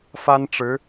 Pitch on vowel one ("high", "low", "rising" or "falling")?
high